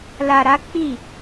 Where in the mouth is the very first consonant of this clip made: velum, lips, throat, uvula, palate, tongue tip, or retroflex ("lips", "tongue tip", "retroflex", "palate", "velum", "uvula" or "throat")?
tongue tip